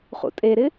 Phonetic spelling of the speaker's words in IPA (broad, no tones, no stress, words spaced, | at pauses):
χṵtʼeɾɪ